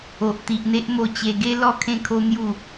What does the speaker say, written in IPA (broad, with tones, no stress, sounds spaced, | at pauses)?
o˨ ʔ t̪ i˨ ʔ n̪ e˦ ʔ m o˧ t͡ɕ e˧ ɡ e˦ l ɔ˥˧ kʰ ẽ˦ kʰ o˦ n̪ j u˥˧